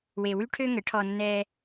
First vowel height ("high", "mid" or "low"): mid